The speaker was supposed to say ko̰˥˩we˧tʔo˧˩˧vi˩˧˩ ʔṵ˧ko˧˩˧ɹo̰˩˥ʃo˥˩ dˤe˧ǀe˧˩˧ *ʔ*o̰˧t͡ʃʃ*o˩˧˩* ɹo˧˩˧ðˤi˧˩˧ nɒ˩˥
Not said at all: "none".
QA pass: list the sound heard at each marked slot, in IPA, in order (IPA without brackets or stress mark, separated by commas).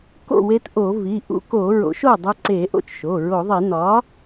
ʔ, o˩˧˩